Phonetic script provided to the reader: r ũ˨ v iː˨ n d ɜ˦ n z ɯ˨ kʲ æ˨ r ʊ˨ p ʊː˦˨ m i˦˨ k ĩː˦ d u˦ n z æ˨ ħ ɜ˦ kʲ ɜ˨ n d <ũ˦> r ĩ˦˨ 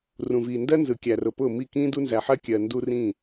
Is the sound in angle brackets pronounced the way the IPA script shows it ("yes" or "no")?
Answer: no